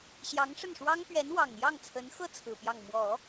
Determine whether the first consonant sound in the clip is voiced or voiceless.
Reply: voiceless